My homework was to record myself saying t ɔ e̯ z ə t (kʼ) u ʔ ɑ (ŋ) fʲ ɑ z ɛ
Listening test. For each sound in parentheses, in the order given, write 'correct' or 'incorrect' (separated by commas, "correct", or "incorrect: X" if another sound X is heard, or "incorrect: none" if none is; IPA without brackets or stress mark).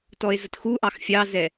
incorrect: x, incorrect: x